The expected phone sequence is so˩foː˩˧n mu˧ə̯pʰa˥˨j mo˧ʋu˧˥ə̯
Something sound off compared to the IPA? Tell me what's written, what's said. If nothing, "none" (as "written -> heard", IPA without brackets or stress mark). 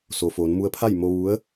none